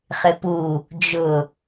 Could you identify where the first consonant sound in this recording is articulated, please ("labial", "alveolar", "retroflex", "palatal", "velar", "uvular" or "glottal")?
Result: uvular